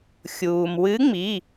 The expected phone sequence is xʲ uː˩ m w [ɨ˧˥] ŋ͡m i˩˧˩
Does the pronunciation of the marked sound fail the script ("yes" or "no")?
no